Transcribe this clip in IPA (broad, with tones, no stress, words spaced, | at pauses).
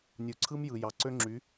nʲu˨ǀʰɯ˦m jɯ˨jɑ˨ ǀø˦ŋ͡ǁy˨˦